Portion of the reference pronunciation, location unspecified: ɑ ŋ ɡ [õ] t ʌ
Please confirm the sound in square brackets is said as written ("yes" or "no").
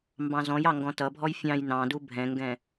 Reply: no